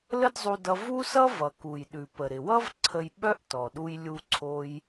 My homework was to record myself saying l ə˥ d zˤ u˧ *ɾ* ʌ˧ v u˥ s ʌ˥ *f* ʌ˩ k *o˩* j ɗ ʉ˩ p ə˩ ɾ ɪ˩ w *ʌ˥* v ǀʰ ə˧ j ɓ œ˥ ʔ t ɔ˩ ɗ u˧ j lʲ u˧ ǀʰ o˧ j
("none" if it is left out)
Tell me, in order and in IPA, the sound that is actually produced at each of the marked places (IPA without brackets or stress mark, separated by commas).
d, v, u˩, ʌ˥